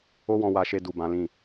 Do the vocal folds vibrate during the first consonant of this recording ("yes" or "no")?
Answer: yes